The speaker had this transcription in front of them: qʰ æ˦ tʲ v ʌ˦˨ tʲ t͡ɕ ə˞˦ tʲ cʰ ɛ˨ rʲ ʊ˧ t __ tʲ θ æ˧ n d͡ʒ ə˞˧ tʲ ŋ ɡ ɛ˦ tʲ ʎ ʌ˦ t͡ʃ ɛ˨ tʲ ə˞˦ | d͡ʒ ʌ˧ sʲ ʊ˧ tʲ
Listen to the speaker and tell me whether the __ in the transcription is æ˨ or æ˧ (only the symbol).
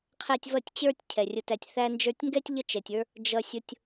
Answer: æ˧